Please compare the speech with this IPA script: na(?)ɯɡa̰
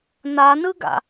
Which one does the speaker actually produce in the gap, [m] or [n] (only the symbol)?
n